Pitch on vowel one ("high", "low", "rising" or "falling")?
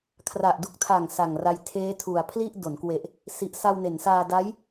low